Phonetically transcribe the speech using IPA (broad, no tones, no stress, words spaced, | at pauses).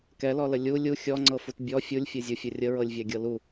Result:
kɛlɔlə lʲu lʲu xʲɔŋ͡ǀɤfut bʲɔ fʲulʲfʲɛzʲufʲə rʲəɹɤlʲvʲæɡʲɤ lu